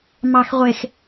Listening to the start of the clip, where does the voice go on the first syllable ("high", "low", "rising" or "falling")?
low